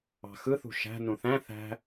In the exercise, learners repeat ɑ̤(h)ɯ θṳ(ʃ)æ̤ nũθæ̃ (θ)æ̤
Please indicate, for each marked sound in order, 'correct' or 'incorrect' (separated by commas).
incorrect, correct, correct